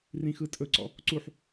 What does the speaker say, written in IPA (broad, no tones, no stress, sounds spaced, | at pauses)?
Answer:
r ĩ x ɯ tʼ ɵ ǀ ɔ̰ | ǀ u ħ